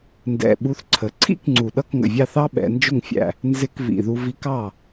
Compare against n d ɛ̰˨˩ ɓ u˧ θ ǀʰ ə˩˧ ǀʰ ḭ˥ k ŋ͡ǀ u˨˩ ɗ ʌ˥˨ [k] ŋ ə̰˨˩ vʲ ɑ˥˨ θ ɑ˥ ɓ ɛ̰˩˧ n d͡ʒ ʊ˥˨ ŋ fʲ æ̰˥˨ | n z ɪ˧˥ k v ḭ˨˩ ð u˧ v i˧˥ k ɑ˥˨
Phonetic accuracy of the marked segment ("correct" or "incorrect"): correct